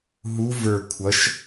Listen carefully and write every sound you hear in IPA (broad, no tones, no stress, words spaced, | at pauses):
ɦu və˞ kʷʰʌʃ